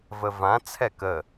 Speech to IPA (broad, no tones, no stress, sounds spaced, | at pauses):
v ə v ã t͡sʰ ɛ k ə